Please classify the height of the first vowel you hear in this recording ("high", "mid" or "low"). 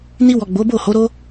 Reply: high